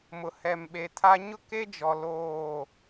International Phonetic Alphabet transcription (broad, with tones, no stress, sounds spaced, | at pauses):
m ʊ˨ h ɛ˨ m ɓ e˨ tʰ a˦ ɲ ʊ˦ k e˦ d͡ʒ ɔ˨ l oː˦˨